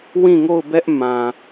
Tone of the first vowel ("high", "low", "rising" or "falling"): falling